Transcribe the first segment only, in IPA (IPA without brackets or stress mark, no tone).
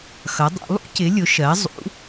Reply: x